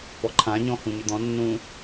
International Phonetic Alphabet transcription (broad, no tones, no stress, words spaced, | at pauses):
pɔǃʰãɲɔ̃ hũɲʏd̪ɔ̃nːũ